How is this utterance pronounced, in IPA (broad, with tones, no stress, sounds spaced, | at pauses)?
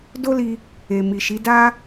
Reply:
d o˦ l i˧ | e˨ m i˨ ʃ i˨˦ d a˦